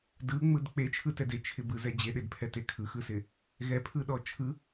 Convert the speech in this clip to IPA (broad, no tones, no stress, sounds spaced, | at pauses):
d ɯ ŋ͡m ɯ d k͡p e t͡ʃʰ ɯ t ɛ d e t͡ʃʰ ɪ b ɯ z ɛ d͡ʑ e ɗ e d pʰ ɛ t e kʰ ɯ x ɯ s ɪ | ɣ ɛ pʰ ɯ ɗ ɔ t͡ʃʰ ɯ